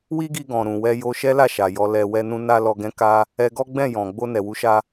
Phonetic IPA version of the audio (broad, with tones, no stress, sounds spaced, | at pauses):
w i˦ ɡ i˧ ɡ ɔ̃˨ ɾ ũ˨ w ɛ˧ j o˧ ʃ ɛ˦ l a˦˨ ʃ a˨ j ɔ˧ l ɛ˧ w ɛ˦ n ũ˦ n a˦ l ɔ˧ ɡ ɛ̃˦ k a˦ | ɛ˧ ɡ ɔ˦ ɡ͡b ɛ̃˦˨ j ɔ̃˨ ɡ͡b o˧ n ɛ˨ w u˨˦ ʃ a˧